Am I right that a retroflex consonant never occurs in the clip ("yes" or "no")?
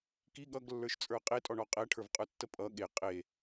no